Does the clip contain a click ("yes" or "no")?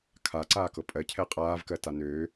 yes